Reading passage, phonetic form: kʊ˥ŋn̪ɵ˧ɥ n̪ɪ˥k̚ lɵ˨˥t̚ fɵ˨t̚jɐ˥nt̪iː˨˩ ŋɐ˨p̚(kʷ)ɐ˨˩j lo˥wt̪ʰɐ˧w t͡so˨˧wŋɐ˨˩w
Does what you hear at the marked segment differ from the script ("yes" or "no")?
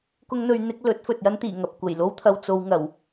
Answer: no